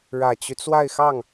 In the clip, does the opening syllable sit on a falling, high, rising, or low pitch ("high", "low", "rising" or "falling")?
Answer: low